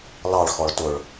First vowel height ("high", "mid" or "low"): low